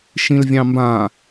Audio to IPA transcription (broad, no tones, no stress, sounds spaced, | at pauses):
ʃ ĩ l vʲ ɑ̃ m b ã